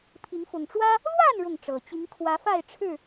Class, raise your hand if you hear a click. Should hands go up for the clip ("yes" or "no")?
no